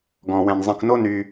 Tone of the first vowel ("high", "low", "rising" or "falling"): low